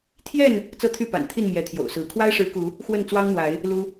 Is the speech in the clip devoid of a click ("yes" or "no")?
yes